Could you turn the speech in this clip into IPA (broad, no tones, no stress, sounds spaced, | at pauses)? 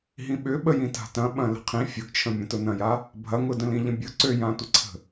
ɦ ĩ ɓ ʏ ɓ ə j ĩ t a̤ t ɐ̃ ɓ ɐ̃ l ə̤ qʰ ĩ fʲ ʊ ɡ t͡ʃʰ ə̃ mʲ ɐ̃ t ʊ n ɐ̃ j a | bʱ ɐ ŋ ʊ d ə̃ l ĩ ʎ ə̃ bʲ ʊ ǀ ø j ã tʷ ə ǀʰ ə̤